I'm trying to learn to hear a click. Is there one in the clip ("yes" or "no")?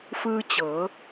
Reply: no